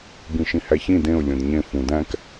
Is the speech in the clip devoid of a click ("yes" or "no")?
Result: yes